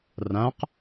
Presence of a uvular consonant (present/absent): present